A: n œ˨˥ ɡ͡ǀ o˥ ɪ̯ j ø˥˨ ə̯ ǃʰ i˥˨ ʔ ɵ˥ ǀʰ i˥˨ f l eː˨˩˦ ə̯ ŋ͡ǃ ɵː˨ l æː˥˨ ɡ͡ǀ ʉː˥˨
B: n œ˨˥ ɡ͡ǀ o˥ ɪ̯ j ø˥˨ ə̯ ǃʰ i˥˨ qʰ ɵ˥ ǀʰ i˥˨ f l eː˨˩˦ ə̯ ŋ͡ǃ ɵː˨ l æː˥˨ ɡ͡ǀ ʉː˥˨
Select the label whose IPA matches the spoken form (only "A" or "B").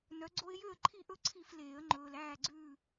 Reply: A